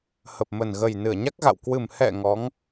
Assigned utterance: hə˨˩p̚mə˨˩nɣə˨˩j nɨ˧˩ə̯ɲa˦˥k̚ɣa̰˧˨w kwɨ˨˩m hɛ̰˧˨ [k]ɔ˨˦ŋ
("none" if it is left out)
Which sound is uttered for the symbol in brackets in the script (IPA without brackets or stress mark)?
ŋ